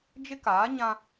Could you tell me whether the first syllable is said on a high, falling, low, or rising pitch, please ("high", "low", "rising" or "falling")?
high